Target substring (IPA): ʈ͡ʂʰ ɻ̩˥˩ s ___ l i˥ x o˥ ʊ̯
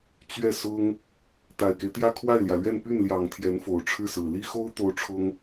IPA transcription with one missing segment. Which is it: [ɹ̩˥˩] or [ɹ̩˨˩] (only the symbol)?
ɹ̩˨˩